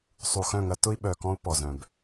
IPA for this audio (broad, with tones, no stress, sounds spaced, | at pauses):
sˤ u˨ x œ̃˦˨ ŋ ɐ˦ t ʊ˦ i̯ ɓ œ˨ k ɔ̃˦ u̯ p ɔ˨ z œ̃˨ b